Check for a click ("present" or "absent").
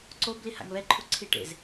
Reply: present